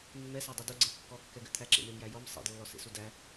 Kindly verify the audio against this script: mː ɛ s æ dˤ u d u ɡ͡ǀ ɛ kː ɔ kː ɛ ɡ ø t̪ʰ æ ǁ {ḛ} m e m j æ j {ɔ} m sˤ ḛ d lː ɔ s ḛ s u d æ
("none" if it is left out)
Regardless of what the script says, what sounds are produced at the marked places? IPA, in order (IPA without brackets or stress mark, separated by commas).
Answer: ḛ, ɔ